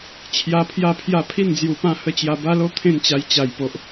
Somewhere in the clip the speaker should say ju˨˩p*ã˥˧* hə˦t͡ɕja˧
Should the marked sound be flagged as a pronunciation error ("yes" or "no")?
no